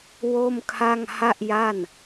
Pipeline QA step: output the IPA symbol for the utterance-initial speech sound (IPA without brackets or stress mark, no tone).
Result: w